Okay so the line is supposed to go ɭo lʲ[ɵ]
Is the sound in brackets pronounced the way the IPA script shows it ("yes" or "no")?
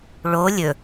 yes